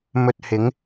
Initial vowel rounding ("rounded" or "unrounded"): rounded